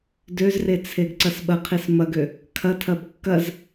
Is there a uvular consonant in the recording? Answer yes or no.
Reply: yes